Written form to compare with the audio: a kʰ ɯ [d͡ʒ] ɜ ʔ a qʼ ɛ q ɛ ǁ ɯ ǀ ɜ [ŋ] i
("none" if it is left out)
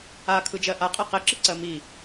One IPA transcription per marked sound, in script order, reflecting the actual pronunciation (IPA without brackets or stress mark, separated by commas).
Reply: d͡ʒ, m